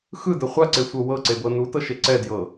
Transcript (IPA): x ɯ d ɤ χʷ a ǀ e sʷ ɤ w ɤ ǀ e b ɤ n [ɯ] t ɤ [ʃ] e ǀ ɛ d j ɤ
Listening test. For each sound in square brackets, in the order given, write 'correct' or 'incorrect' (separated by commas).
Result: incorrect, correct